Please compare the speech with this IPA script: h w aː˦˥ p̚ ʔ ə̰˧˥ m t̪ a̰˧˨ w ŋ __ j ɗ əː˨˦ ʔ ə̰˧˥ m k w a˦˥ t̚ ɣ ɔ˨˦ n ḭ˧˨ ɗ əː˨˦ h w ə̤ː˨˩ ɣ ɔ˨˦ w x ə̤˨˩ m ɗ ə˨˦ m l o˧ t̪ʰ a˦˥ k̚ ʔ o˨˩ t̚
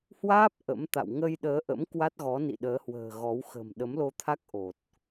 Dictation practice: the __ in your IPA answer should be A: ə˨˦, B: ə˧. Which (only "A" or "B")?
B